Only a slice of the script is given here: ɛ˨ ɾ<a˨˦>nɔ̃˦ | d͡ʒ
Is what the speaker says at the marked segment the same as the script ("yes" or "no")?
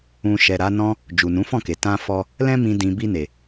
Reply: yes